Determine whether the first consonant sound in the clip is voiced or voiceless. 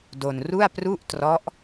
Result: voiced